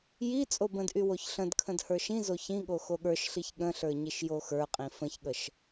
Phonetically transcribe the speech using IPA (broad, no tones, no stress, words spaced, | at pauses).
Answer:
ji t͡sʼobə̃dʔy woçɬə̃dkʰə̃d hə˞ʃĩzo çĩɠo xoɠə˞ʃɬiç ɠə̃ɬə˞ ɲiʃjoxə˞qʼĩ fə̃çɠəʃ